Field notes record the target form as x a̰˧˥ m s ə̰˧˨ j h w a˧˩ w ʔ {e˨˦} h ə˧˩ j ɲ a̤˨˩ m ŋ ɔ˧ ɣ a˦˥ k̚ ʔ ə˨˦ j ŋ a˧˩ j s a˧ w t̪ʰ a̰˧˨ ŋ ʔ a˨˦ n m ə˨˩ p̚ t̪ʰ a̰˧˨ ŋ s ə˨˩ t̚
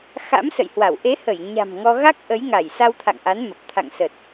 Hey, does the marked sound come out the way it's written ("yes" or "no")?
yes